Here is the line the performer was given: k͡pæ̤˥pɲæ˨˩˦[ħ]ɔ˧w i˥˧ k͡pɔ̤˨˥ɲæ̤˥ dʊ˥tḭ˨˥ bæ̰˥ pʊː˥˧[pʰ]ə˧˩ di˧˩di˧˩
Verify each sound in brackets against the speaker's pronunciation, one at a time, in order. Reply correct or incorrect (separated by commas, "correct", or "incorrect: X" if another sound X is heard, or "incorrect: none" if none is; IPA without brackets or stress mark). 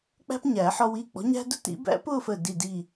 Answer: correct, incorrect: f